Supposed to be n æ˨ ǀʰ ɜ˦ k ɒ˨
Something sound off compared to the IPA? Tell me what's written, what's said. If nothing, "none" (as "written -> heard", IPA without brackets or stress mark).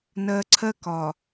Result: æ˨ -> ɜ˨